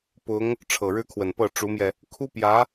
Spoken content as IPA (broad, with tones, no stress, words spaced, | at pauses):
pʊ˧˥ŋ | ʈ͡ʂʰɤ˨˩ɻɻ̩˥kʰwə˨˩npɤ˥˩ ʈ͡ʂu˧˥mjɛ˧ | kʰu˥pjä˧˥